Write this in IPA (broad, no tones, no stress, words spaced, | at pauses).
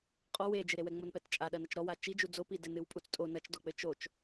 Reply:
qʼɔ wed͡ʒɨɾewɛ ŋ͡monpɛtt͡ʃʼa ɗɐnɐt͡ʃɾɔwa t͡ʃid͡ʒu d͡zopi dɘnɨwpʼut͡stʼo nɐt͡ʃdɔk͡pɘ t͡ʃot͡ʃ